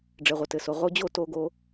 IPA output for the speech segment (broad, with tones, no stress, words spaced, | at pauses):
ɖ͡ʐɘ˨ʁʷɘ˨tɘ˨so˨ ʁo˧d͡ʑo˦˨ to˧ ɡo˧